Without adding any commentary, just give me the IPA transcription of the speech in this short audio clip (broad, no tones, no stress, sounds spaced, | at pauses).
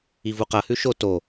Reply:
i v u q ɐ h ʉ ʃ o t o